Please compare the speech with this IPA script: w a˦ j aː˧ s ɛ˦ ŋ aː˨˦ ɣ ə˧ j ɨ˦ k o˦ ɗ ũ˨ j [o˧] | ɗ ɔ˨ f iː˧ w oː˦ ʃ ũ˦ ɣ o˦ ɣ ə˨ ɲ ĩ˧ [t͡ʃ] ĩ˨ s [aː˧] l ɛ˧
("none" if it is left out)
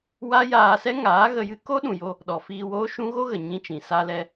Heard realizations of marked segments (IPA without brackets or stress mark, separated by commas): o˧, t͡ʃ, a˧